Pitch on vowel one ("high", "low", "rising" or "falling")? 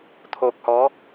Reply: low